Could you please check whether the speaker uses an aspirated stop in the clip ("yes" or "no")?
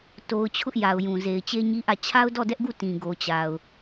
yes